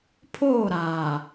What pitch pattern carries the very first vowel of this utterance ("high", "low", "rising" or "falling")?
falling